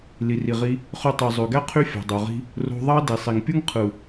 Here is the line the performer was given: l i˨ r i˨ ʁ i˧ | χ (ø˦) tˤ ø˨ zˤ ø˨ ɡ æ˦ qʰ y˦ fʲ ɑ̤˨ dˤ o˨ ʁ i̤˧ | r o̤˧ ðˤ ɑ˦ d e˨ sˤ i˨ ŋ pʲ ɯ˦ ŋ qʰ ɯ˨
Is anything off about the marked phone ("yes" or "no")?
yes